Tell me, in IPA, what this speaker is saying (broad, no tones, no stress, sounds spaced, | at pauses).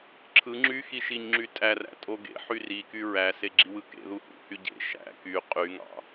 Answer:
ǁʰ ɯ ŋ͡ǁ y x i ʃ i ɲ ŋ͡ǁ y tʼ æ r æ̰ tʼ o ɡ ḛ ħ y r i k y ɹ æ s e ɡ͡ǁ i w ɯ k ḛ ð u h ṵ h y ɟ ḛ ʃ æ̰ k y qʼ y ŋ ɑ̰